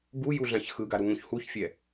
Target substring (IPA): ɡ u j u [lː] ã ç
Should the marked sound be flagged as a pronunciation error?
yes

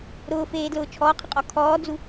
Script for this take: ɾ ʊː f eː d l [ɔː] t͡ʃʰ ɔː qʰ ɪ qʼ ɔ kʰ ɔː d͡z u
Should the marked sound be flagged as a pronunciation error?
yes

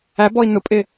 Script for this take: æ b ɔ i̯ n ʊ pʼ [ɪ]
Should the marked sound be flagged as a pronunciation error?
yes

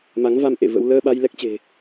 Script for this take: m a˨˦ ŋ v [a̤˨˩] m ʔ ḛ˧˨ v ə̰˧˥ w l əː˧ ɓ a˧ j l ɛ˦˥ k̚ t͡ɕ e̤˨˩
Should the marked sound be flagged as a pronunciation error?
yes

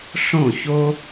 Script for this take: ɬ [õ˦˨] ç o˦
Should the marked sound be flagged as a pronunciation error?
no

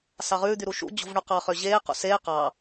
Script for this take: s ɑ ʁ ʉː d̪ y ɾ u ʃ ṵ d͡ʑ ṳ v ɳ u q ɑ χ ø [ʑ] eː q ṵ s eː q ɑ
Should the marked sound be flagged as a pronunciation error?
no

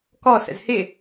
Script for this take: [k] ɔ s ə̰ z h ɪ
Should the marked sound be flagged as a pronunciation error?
no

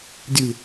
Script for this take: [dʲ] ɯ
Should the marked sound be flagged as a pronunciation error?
no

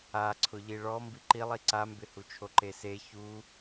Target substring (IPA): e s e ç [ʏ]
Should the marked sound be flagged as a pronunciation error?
yes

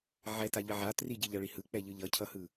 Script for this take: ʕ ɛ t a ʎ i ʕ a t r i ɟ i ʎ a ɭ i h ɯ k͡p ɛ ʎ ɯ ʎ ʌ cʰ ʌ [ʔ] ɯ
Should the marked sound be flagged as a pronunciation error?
yes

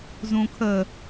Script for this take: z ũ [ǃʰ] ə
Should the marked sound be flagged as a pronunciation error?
yes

